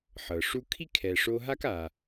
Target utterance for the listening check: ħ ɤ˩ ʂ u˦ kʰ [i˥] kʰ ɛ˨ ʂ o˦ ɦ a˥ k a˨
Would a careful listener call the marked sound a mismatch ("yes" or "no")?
no